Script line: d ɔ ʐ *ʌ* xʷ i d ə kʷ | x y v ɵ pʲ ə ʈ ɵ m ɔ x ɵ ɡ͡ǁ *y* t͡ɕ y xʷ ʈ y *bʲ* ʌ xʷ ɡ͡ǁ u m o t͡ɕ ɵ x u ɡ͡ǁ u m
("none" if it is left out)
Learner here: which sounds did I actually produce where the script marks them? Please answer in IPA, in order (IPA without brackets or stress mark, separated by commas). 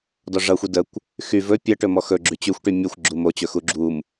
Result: ʌ, y, mʲ